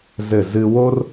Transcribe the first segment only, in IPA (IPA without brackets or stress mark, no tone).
z